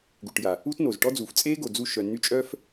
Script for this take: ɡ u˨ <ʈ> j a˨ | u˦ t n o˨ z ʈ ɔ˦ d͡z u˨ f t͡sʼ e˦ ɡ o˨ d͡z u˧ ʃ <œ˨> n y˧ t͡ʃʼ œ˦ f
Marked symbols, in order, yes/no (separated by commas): yes, yes